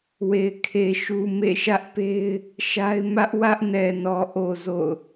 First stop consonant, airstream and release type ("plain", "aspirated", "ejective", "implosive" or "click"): aspirated